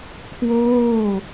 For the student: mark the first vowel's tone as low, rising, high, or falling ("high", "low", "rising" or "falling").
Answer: falling